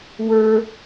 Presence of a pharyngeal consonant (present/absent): absent